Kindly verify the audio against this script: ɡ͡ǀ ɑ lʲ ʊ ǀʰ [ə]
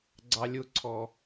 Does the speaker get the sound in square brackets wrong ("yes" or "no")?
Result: yes